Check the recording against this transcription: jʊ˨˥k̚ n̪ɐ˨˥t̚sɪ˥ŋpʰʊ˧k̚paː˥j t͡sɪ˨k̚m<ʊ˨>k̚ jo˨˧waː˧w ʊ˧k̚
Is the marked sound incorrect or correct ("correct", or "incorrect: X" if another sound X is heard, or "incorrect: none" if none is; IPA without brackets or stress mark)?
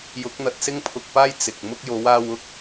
incorrect: ʊ˥